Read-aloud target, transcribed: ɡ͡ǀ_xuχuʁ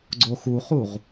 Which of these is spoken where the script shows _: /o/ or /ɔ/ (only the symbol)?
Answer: o